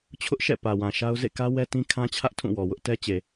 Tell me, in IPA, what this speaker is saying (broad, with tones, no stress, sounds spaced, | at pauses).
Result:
t͡ɕʰ ʊ˦ ʔ ʃ ɛ̰˦˨ p ä˨ w ã˨ ʃ a˦ ʊ̯ z ḛ˦˨ k ä˦ w ɛ˦ t ĩ˦ kʰ ã˦ t͡ɕʰ ä˦ ʔ tʰ ũ˦˨ w ɔ˨ w ʊ˦ ʔ t ɛ˦ t͡ɕ e˨